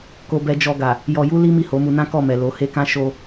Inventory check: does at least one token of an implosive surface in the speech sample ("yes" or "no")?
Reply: no